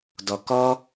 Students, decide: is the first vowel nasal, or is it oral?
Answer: oral